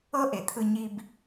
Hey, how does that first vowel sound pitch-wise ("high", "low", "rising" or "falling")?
high